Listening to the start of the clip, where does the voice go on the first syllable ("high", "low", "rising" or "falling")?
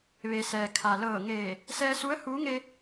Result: low